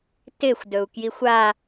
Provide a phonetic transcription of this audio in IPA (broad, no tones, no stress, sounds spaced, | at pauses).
t ɪ xʷ d ɵ u̯ k j i xʷ a